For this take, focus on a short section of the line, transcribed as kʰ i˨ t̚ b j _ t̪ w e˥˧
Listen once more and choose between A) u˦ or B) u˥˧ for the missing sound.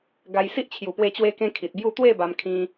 B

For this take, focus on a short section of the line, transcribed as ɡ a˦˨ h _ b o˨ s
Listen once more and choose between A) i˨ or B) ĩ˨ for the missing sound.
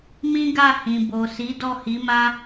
B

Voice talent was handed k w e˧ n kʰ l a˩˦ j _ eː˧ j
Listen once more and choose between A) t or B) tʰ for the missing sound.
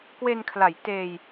A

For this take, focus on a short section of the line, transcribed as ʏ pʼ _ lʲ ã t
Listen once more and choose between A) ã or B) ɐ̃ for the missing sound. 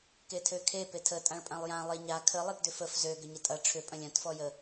B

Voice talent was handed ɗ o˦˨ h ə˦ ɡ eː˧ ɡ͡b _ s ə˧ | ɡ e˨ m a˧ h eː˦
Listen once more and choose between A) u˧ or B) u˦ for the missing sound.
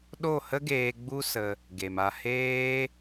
B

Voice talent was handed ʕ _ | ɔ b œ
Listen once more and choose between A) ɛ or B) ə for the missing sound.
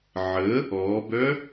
B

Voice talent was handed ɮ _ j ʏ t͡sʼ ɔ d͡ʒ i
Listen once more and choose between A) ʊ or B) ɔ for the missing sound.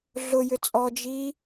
A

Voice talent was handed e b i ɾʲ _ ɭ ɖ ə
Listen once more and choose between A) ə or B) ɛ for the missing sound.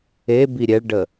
B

